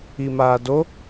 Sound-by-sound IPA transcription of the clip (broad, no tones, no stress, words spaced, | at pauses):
imaːdo